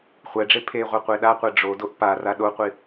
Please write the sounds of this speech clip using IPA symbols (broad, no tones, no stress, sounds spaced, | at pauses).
χʷ ɛ ɖ͡ʐ e pʰ e ʁʷ e qʷ e ɗ a qʷ ɛ ɖ͡ʐ o d o ʔ p a r a ɗ o qʷ i